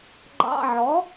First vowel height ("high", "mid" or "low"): low